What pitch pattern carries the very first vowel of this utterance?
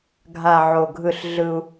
low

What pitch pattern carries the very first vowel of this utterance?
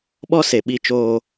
high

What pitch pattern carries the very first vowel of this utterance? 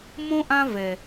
high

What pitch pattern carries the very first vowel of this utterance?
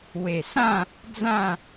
low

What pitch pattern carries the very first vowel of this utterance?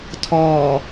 low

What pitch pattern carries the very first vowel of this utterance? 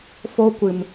high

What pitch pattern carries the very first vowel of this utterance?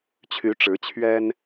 rising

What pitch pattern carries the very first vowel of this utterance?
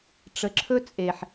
low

